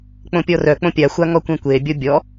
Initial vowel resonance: nasal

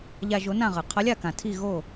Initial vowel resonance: oral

